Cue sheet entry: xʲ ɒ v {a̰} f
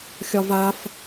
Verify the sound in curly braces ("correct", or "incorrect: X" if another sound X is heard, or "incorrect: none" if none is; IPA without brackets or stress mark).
incorrect: a